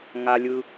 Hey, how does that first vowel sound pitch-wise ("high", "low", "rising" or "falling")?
low